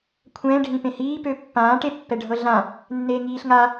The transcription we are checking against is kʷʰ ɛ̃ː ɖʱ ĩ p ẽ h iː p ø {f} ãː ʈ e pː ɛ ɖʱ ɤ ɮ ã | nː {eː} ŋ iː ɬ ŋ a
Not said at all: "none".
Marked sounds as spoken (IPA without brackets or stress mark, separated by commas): pː, eː